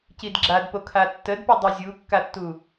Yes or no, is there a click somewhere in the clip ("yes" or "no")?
yes